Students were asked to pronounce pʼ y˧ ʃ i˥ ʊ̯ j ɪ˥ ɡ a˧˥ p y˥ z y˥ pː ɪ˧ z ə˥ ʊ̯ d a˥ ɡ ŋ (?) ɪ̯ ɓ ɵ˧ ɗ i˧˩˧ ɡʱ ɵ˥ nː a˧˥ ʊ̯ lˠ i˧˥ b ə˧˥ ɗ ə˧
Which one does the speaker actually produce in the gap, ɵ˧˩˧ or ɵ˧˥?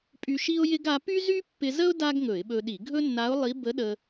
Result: ɵ˧˩˧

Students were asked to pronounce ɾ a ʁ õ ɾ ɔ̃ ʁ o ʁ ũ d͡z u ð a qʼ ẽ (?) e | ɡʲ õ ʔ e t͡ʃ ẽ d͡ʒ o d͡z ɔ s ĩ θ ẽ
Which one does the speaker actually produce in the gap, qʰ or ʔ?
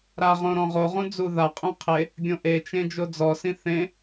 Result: qʰ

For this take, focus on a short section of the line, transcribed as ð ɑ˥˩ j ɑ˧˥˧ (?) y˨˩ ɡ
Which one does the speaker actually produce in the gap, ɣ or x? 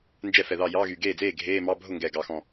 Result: ɣ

